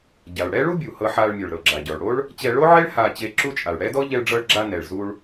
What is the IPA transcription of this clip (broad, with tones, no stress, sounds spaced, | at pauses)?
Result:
ɟ a˩ ɭ ɽ ɛ˥ ɭ u˥ bʲ u˩ h ɤ˧ ħ a˧ ɭ mʲ o˩ ɭ ɾ ɤ˩ ɡ͡ǁ a˩ ɟ ɔ˩ ɭ ɽ o˥ ɭ | t͡ɕ ɛ˧ ɭ o˥ ʕ e˥ ɭ h a˧ t͡ɕ e˧ ǁ u˧ t͡ʃʼ a˩ ɭ ɽ ɛ˥ d ɔ˥ ʎ ɛ˧ ɭ ɖ͡ʐ ɤ˧ ɭ ɡ͡ǁ a˧ n ɛ˩ ɭ z u˧ ɭ